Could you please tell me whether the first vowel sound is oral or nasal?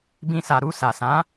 nasal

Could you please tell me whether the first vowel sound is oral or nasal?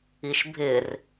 oral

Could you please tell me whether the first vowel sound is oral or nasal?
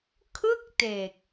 oral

